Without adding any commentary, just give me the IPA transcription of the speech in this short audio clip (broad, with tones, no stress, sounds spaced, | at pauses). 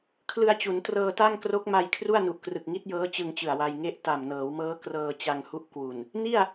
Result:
kʰ l ɯ˧ a̯ t͡ɕ u˩˦ n t r ɤː˧ t a˥˩ ŋ k r o˦˥ k̚ m a˧ j kʰ r u˥˩ a̯ n u˨˩ ʔ k r ɯ˨˩ k̚ ŋ i˦˥ t̚ j ɤː˦˥ t͡ɕ ɯ˧ ŋ t͡ɕ ɯ˨˩ a̯ w a˧ j ŋ e˦˥ ʔ t a˨˩ m n ɤː˩˦ w m ɤː˦˥ k r ɤː˧ t͡ɕ a˧ ŋ h u˦˥ ʔ k w u˨˩ n | n i˥˩ a̯